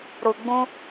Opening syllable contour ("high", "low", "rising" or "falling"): low